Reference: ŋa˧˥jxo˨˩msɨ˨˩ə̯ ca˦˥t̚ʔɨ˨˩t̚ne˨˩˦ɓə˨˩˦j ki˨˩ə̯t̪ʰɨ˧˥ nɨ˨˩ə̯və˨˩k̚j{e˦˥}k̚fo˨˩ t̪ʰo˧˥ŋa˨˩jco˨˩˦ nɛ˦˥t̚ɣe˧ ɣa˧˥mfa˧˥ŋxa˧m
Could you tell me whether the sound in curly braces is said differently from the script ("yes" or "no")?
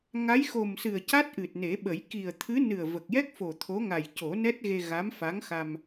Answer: yes